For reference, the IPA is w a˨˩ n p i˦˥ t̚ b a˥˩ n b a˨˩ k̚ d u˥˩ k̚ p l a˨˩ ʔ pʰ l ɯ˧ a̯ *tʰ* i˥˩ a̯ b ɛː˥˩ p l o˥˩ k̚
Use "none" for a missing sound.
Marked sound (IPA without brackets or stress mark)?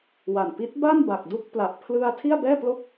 tʰ